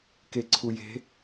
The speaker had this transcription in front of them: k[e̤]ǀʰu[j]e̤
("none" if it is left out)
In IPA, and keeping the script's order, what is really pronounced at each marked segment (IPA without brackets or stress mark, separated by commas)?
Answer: e, j